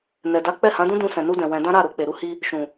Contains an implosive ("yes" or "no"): no